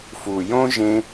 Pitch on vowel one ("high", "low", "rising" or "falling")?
low